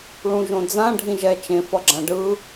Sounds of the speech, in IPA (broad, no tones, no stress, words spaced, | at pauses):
ɭũʒõd͡zã ɖʱĩʒɛ t͡ʃẽ fʌɡ͡ǁãɖɯ